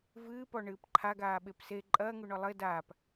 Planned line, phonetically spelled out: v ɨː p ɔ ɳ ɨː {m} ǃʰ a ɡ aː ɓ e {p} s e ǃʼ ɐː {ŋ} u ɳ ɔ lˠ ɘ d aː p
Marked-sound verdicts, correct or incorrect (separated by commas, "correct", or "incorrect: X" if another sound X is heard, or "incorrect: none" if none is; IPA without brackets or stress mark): incorrect: p, correct, correct